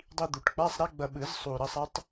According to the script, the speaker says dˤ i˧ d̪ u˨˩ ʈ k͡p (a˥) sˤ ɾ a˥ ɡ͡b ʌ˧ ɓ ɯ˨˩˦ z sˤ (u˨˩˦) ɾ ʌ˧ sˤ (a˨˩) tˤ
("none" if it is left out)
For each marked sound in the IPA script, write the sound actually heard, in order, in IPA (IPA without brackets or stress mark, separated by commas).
a˧˥˧, u˨˩, a˧˥